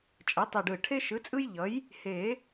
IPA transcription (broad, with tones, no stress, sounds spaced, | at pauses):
t͡ʃʼ ɛ˩˥ tˤ i˨˩ ɖ ɯ˨˩ ʈʰ e˦ ʃ ɯ˩˥ t͡sʼ ɯ˦ j ʎ ʌ˩˥ j | h e˨˩˦